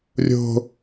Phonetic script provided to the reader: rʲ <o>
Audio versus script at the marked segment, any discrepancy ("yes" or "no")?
yes